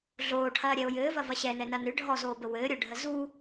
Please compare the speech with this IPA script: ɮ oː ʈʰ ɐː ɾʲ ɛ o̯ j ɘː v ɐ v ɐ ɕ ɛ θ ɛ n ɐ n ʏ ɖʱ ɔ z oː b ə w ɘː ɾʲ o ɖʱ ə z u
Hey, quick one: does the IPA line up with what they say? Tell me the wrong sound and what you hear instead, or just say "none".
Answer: θ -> n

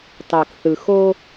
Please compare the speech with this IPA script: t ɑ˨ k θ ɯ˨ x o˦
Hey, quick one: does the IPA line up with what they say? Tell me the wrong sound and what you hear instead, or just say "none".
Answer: none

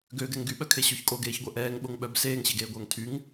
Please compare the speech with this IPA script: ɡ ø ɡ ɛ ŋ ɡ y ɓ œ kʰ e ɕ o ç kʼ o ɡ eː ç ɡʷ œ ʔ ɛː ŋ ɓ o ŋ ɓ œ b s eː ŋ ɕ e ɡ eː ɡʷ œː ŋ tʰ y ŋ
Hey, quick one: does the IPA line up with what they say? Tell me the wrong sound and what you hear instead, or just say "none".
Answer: none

